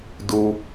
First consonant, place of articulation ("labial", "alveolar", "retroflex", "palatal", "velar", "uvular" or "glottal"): alveolar